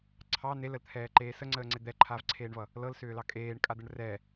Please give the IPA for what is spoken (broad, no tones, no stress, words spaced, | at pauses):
ǀʰɑ neləlt̪ʰɛːǃeː səŋ͡ǀəːŋ͡ǀe d̪ɛǃʰaːvǀʰeːɳvʌ | lɤlsʏːlɑ kʼeːɳkʼad̪əɳ rɛ